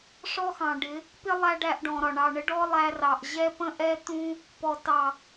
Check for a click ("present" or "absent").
absent